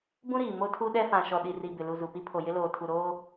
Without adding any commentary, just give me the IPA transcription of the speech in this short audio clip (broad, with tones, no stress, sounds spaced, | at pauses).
b ũ˦ ɾ iː˨ m o˦ tʰ u˦ ɗ ɛ˦ f ã˨ ʃ ɔ˨ ɗ i˨ r i˨ b ɪ˨ l u˨ z u˨ p i˦ pʰ o˨ j ɪ˦ l oː˨ tʰ u˨ ɾ oː˦